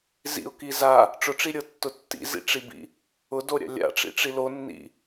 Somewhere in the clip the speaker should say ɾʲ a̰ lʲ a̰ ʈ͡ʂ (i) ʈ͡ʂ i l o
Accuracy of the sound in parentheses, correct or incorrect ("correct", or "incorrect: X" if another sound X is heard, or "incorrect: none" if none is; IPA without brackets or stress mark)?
incorrect: ḭ